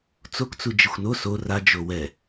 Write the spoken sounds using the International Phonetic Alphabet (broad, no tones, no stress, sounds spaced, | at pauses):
t͡s o k t͡s u d͡ʒ ɪ xʷ n o s o r a d͡ʒ o w ɛ